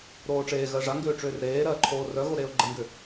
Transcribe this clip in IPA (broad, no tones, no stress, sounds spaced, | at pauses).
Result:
ɾ oː ʈ͡ʂ eː ɣ ɜ ʐ a ŋ ɡ ʏː ʈ͡ʂ ʏː r ɾ eː ɾ ɜː ǃʰ oː r œ ɣ o ɾ eː ʊ̯ ɡ͡ǃ ə ŋ ɡ ʏ